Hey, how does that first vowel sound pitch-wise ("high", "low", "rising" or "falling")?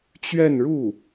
falling